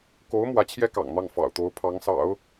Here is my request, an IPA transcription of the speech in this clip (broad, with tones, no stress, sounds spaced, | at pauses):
k o˧˥ ʊ̯ m w ä˧˥ t͡ɕʰ j ɛ˥ k ɑ̰˨˩ ŋ n̪ ɑ˥˩ ŋ f ɑ̰˨˩ ʊ̯ t̪ o˧˥ ʊ̯ pʰ ɑ˧˥ ŋ s ɑ̰˨˩˦ ʊ̯